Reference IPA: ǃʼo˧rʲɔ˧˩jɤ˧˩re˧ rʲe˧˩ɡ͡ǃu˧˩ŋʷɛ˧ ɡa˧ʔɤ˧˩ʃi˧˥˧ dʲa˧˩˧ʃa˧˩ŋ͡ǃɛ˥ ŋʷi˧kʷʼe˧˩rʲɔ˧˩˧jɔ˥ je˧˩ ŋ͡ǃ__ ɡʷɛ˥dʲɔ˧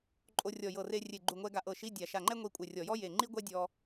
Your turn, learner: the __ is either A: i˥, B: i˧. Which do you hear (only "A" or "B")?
A